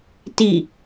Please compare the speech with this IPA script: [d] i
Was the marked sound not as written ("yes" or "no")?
yes